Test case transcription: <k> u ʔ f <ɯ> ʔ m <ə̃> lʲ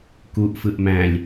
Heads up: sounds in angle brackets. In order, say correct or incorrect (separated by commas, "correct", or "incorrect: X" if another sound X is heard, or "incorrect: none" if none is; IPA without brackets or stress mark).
correct, correct, incorrect: æ̃